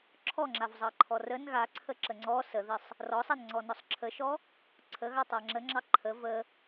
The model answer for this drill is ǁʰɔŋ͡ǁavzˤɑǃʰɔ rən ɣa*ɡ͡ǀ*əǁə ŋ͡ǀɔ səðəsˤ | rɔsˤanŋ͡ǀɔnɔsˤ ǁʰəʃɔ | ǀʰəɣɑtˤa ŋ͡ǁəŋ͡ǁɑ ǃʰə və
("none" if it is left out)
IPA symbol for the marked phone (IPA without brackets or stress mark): ǀʰ